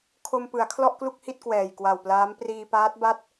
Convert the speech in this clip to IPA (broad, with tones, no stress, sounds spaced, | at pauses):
kʰ o˧ m p ɯ˩˦ a̯ kʰ l ɔ˥˩ ʔ k l u˥˩ k̚ h i˥˩ t̚ k w ɛː˨˩ j k w a˨˩ w p l aː˦˥ m p r iː˧ p aː˦˥ t̚ b a˥˩ t̚